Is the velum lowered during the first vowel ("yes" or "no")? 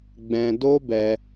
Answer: yes